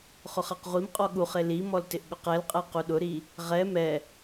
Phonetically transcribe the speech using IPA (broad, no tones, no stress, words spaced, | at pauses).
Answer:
χʊχaqʁʷimqʼɔ ɠuχe limɔl tɪʔɠʊqɛlqʼɛ quɗʊɾi | ʁɛ mɛ